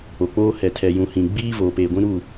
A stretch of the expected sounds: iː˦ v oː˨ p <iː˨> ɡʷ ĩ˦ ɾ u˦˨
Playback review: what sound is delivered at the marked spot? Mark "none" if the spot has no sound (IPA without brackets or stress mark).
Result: eː˨